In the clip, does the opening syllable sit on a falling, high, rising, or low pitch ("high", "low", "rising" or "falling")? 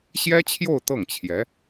high